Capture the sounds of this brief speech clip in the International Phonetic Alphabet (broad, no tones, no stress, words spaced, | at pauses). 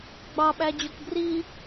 ɡ͡bɑɓæd͡ʑok bri